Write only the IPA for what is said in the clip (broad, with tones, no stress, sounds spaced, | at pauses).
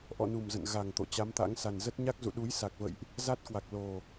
ʔ ɔ̰˧˨ n u˨˩ m z ə̰˧˨ n ɣ a˨˩ ŋ t̪ o̰˧˨ t͡ɕ a˨˦ m t̪ a̰˧˥ ŋ s a˨˩ n z ə˦˥ t̚ ɲ a˦˥ k̚ z ṵ˧˨ ɗ u˨˦ j s a˨˩ k̚ v ə̰˧˨ j ʔ | z a˦˥ t̚ k w a˨˩ k̚ l o˨˩